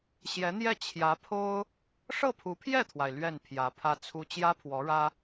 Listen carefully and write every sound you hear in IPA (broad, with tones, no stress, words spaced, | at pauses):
ɕjɛ˧˥n̪jɛ˥˩ t͡ɕʰjä˧˥pʰo˥ʊ̯ | ʂɤ˥˩pʰu˧˥pʰjɛ˥˩t̪ʰwa˩ɪ̯ lɥɛ˥˩n pʰjä˧˥pʰä˥t͡sʰu˥ t͡ɕjä˥pʰwɔ˧˥ɻä˥